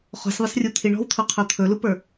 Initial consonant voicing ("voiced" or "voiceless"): voiceless